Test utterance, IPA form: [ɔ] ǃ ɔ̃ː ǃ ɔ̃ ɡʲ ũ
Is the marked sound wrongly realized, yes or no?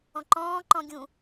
yes